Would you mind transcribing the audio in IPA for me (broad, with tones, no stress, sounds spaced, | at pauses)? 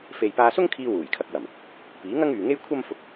f e˨ j p aː˧ s ʊ˥ ŋ kʰ iː˧ w uː˨˩ j kʰ ɐ˧ k̚ w ɐ˨˩ m | p iː˨˥ ŋ ɐ˥ ŋ yː˨ ŋ e˥ j kʷʰ ɐ˥ m f ʊ˧ k̚